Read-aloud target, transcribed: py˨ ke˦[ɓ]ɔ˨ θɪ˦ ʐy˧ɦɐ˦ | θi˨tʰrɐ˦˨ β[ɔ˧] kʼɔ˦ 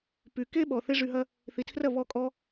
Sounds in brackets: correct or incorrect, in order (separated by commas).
correct, correct